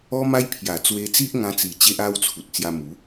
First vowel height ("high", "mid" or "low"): mid